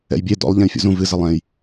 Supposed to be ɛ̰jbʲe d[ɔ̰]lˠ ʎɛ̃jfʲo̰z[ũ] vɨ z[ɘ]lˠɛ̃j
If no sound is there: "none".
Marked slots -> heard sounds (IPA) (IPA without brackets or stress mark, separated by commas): ɔ̰, ũ, ɘ